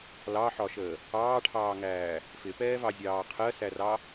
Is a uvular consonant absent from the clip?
no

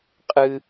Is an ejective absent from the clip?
no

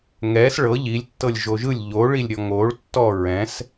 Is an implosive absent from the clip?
yes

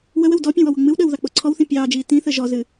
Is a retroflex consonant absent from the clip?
yes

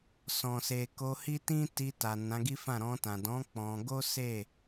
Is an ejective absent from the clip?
yes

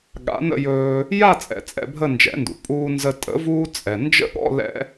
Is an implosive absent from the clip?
no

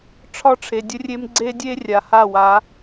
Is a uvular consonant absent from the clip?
yes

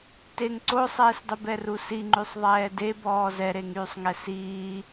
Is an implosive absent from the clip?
yes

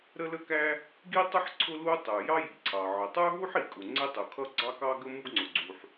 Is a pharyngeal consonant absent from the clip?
no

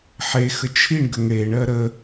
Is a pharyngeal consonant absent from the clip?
no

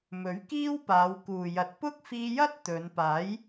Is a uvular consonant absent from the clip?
yes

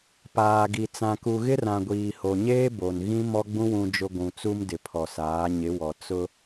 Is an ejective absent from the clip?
yes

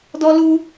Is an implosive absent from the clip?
yes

